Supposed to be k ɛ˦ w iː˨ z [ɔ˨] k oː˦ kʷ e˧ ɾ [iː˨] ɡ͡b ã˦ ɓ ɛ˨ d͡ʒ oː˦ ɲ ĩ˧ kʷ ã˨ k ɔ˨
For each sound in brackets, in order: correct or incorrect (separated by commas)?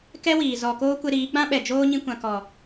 correct, incorrect